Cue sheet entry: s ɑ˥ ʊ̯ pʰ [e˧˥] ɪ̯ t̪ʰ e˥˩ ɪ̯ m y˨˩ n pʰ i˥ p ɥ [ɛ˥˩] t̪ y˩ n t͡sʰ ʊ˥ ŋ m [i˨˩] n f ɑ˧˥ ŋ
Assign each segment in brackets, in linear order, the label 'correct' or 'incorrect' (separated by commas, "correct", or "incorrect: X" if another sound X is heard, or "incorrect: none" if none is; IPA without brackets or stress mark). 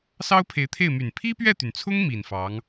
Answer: correct, correct, correct